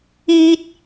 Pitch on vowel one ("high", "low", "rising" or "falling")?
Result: high